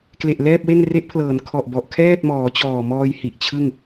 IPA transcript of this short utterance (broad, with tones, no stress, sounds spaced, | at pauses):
k l e˨˩ ʔ l ɛː˥˩ p̚ w e˥˩ n r e˦˥ ʔ pʰ l ɤː˩˦ n kʰ ɔ˨˩ ʔ b ɔ˨˩ ʔ kʰ ɛː˥˩ t̚ m ɔː˩˦ t͡ɕ ɔː˨˩ m ɔː˧ j h i˨˩ ʔ t͡ɕʰ ɯ˥˩ ŋ